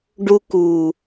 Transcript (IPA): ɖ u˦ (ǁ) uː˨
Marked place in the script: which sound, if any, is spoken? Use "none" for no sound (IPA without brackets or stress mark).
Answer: k